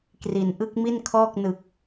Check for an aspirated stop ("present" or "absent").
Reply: present